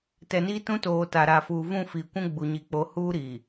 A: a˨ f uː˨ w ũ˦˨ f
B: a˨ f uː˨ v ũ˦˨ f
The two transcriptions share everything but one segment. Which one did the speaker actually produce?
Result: B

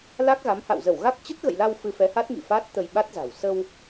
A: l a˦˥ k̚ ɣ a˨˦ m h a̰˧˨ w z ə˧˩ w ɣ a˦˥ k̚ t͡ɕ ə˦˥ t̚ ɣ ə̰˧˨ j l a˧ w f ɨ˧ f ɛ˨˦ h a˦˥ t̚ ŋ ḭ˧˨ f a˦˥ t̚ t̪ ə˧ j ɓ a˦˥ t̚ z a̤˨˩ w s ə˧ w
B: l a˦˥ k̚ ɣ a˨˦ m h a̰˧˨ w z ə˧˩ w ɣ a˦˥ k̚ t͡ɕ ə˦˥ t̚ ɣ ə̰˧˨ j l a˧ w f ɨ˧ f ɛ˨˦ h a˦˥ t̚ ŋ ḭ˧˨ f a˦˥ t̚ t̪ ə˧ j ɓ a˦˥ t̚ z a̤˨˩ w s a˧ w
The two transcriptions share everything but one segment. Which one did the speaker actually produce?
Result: A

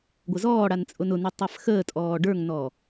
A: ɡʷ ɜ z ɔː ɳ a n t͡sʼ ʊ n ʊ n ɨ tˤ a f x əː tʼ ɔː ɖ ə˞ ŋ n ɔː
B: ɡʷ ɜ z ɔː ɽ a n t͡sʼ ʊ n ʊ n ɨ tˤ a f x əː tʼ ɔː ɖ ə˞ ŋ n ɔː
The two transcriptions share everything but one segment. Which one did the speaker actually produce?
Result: B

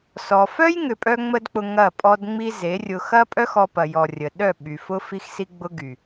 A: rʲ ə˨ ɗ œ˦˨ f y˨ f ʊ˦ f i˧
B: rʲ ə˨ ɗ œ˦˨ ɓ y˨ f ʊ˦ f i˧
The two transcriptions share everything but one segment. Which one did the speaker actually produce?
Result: B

